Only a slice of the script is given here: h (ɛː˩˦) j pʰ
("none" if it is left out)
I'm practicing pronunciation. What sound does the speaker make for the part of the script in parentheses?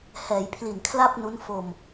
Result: ɛː˩˦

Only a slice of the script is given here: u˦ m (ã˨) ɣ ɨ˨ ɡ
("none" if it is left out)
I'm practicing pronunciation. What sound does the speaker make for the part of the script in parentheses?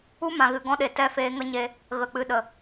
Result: ã˨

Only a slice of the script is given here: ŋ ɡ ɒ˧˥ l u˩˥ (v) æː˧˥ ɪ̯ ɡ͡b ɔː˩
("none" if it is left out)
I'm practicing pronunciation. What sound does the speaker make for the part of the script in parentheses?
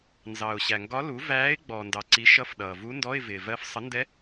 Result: v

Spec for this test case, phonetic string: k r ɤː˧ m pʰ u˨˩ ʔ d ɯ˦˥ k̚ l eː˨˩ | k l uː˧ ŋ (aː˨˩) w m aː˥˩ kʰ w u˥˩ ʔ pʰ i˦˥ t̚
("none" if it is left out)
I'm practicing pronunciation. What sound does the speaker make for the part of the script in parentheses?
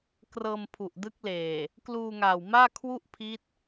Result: aː˨˩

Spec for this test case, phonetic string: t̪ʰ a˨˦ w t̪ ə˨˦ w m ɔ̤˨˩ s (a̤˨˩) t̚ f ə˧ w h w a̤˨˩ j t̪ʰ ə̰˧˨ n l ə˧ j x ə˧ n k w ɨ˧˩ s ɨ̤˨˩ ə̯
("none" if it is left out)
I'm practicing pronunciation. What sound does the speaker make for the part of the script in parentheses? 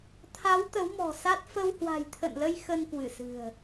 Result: a˦˥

